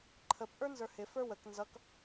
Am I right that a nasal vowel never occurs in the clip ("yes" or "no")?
yes